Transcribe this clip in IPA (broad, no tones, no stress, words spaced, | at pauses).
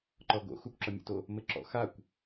ǃɔɡo̰ xukʷǁʌmʲṵto | mɘǁɔ̰ xakʷ